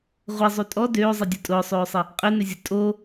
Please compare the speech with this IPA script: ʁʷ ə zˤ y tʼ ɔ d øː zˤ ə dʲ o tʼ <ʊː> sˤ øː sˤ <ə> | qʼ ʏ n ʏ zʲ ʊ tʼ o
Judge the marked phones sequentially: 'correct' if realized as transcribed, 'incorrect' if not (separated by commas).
correct, correct